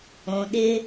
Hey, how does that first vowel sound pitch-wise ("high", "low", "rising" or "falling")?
low